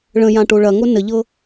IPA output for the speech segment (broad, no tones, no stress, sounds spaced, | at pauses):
ɭ ə̃ j ã ʈ o ɭ ɐ ŋ o n ə ʎ ɤ